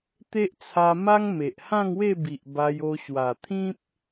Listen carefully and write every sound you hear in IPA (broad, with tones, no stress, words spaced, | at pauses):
t̪e˦ʔt͡sʰa˧ma˦ŋ me˨ʔ hã˥˧ŋwe˥˧bi˨ʔ ba˧jo˧ ɕwa˨˩t̪ʰĩ˦p̚